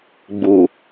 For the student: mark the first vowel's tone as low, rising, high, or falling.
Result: low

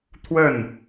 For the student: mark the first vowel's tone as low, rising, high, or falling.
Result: falling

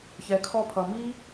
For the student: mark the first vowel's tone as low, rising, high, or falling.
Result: low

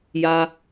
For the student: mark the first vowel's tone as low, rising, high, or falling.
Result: high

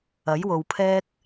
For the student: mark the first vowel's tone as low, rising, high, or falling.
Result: rising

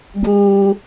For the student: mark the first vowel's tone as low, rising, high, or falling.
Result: high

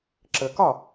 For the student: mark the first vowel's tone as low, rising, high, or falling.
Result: low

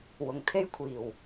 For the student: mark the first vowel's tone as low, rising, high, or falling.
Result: low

